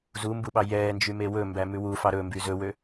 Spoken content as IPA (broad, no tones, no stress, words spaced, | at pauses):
zumbuɓɑ jɛːnd͡ʒyme wɵmbæ mʉwufɑ ɾɵmby zɵwø